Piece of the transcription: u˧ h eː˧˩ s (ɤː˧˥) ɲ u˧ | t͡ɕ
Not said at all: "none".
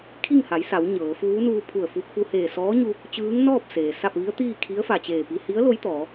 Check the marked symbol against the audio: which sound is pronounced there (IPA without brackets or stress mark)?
ɔː˧˥